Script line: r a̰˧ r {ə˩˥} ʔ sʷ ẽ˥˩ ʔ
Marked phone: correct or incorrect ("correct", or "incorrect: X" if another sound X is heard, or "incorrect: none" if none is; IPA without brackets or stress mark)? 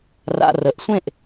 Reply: correct